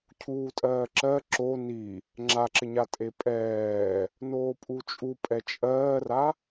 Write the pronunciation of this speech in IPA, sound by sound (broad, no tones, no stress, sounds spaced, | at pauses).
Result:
cʰ uː tʼ ɜː ǁ ɜ ǁ o n i | ŋ͡ǁ a ǁ ɪ ɲ a tʼ e pʼ ɛː | n oː pʼ u t͡ʃʼ u pʼ ɛ t͡ʃʼ ɜː r a